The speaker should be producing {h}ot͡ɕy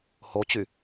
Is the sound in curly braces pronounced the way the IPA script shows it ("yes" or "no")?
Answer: yes